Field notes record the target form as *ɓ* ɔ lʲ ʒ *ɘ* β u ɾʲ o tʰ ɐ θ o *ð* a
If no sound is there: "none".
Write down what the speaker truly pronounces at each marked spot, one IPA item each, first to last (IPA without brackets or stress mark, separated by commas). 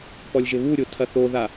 p, ɘ, ð